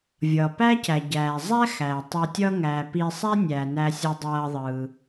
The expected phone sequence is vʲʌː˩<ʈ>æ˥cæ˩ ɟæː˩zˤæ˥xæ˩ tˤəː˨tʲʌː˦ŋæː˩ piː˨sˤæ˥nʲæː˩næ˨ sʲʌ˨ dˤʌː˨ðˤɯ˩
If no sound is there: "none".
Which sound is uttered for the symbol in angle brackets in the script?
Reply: p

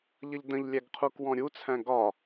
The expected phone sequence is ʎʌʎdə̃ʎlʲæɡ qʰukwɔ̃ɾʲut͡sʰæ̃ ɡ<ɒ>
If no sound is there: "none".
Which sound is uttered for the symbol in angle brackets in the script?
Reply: ɒ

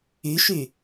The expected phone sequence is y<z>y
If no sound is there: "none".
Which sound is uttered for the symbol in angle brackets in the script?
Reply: ʃ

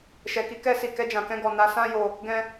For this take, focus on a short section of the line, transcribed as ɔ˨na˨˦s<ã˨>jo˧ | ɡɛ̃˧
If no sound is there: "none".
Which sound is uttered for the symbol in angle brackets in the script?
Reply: ã˦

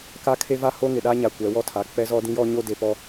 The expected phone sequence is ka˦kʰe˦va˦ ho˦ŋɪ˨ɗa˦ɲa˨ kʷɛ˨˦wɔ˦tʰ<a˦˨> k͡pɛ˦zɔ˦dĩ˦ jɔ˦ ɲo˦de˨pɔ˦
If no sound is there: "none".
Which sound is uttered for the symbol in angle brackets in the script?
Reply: a˨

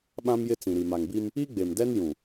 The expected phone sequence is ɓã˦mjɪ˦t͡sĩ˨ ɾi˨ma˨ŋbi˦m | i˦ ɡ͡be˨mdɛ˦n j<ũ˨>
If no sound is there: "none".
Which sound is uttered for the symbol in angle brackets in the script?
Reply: ũ˨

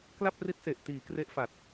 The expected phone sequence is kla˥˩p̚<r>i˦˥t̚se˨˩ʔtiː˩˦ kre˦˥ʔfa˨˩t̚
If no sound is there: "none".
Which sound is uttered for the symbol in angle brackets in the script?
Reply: r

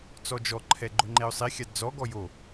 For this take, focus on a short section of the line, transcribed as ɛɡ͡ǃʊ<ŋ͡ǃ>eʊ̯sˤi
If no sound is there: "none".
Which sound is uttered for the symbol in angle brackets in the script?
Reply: ŋ͡ǃ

